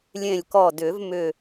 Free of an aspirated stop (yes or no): yes